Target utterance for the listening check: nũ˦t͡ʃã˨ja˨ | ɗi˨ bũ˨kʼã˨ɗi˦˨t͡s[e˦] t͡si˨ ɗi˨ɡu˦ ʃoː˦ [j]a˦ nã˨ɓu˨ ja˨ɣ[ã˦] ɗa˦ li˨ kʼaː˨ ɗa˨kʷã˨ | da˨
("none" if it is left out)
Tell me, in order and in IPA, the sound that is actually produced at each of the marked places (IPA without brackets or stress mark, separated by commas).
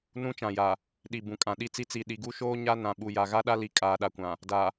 i˦, ɲ, a˦